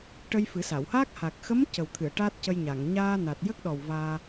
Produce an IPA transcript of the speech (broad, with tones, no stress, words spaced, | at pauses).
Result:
ʈə˧jfɨ˨˩˦sa˨˩˨whaː˦˥k̚ ha˨˩k̚xə˧˥m cə˨˩wt̪ʰɨ˨˩˨ə̯ ʈaː˦˥t̚cə˧jɲa˨˩˨ŋ ɲaː˧na˨˩t̚jə˦˥k̚ɗɔ˨˩w vaː˧